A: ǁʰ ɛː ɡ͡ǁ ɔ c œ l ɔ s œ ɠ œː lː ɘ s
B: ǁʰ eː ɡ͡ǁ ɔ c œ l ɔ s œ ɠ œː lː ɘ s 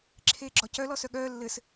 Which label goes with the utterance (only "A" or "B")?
B